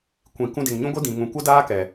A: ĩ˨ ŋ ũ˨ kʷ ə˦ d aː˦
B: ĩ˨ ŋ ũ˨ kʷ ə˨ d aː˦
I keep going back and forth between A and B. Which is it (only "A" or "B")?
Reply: A